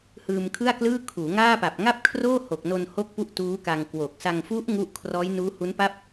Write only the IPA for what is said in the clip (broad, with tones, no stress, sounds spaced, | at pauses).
h ɯː˧ m kʰ ɯ˥˩ a̯ k l ɯː˥˩ kʰ uː˩˦ ŋ aː˥˩ p a˨˩ p̚ ŋ a˥˩ p̚ kʰ r oː˥˩ h o˨˩ k̚ n o˧ n h o˥˩ k̚ p u˥˩ ʔ t uː˦˥ k a˧ ŋ k w o˨˩ k̚ s a˧ ŋ f u˦˥ ʔ ŋ u˦˥ ʔ kʰ r ɔː˦˥ j n uː˦˥ h u˦˥ n p a˥˩ p̚